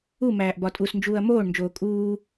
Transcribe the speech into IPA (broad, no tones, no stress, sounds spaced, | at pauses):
u m æː ʔ b ɒ tʼ u s n d͡ʒ uː ɐ̯ m oː ɳ n d͡ʒ oː kʼ uː